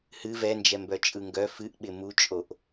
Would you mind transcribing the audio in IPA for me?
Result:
h ɨ v ɛ n d͡ʒ ɛ m b œ t͡ʃʼ ɯ ŋ ɡ œ f ɨ ʔ ɓ ɪ m u t͡ʃʼ o ʔ

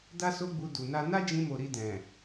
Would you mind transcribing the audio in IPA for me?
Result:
d a˦ s o˦ ɡ͡b u˧ d u˨ n a˧ n a˦ d͡ʒ ĩ˧ m o˨ ɾ i˧ d ɛ̃˨

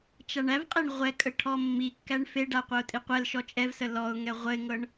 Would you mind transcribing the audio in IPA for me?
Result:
t͡ʃ a ɳ æ v qʼ e ɳ ʁʷ ɛ kʼ ə ʈʰ ɔ mː i kː æ ɳ f e ɖ a qʷ a ʊ̯ tʼ i qʷ ɛ l ʃ ɔ t͡ʃʼ ɛ v s ə l ɔ ʊ̯ ŋ ɛ ʁʷ ə ɪ̯ ŋ ɤ ɳ

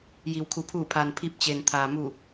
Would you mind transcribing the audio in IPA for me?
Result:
j i˩ w kʰ u˩˧ pʰ uː˧˩ pʰ aː˩ n pʰ i˧˩ p̚ t͡ɕ e˩ n t̪ʰ aː˩ m u˧˩

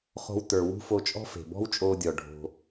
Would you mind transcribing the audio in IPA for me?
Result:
χ o̤˧ w t ə˞˨ w ṳ˦ f o˧ t͡ʃʼ ɔ̤˦ f e̤˨ b ɔ̤˦ w t͡ʃʼ oː˧ dʲ ɔ˨ ɖʱ o̤˧

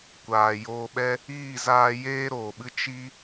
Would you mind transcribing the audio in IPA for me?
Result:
kʷ aː˨ j oː˧ ɓ ɛ˦ | iː˦˨ z aː˧ j eː˦ ɾ oː˨ ɓ ɨ˦ t͡ʃ i˦

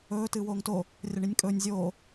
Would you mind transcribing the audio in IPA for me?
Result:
ɵː t ɨː w oː ŋ t o | rʲ ɐ ɳ i nʲ kʼ ɵː nʲ zʲ oː

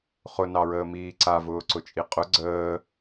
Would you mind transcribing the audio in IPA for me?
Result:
χ ʊ n ɑ ɹ əː m iː ǀ a v ʊː ǀ ʊ t͡ʃʼ i qʼ ʊ ɡ͡ǀ əː

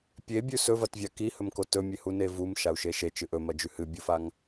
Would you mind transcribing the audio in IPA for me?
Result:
pʲ e bʲ ʉ s ɵ v ɐ t vʲ a k i h ɵ m k o t ɵ mʲ e h u n e v u m ʃ a u̯ ʃ e ʃ e t͡ʃ ɨ ʔ ɵ m ɐ d͡ʒ ʉ h ɨ bʲ u f a ŋ

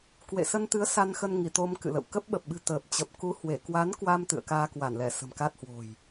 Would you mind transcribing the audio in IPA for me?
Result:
k w ḛ˧˨ s ə˧ n t̪ ɨ˨˦ ə̯ s a˧ n x ə˧ n ŋ i˧˩ t̪ o˧ m k ɨ̰˧˨ l ə̰˧˨ w k ə˦˥ p̚ ɓ ə˨˩ p̚ ɓ ɨ̤˨˩ t̪ əː˨˩ p̚ t͡ɕ ə˨˩ p̚ k u˨˦ h w e˧˩ k w a˨˦ n k w a˧ m t̪ ɨ̰˧˨ ə̯ k aː˧ k w a˧˩ n l ɛ˧˩ s ə̤˨˩ m k a˦˥ t̚ h w o̤˨˩ j

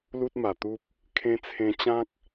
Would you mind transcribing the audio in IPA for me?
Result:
l u˦ t̚ m a˨˩ t̪ u˦ p̚ | kʰ ẽ˧ t͡sʰ ẽ˧ t͡ɕ ã˦ k̚

